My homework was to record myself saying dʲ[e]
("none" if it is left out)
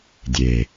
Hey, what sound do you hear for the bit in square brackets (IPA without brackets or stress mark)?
e